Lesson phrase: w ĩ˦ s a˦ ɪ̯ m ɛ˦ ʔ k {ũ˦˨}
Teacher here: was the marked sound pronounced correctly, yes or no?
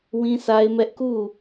no